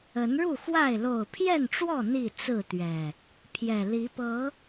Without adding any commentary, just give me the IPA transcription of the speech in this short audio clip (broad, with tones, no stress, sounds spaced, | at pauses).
ə˨˦ n ɻ u˥˨ x w a˥˨ ɪ̯ l o˥˨ ʊ̯ pʰ j ɛ˥˨ n ʈ͡ʂ w ɔ˥˨ n̪ i˥˨ t͡s ɹ̩˥˨ t̪ ɥ ɛ˨˩ | pʰ j ɛ˨˩ l i˨˦ p ɤ˨˦